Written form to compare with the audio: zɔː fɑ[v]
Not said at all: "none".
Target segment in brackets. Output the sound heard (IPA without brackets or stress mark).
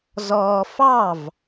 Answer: v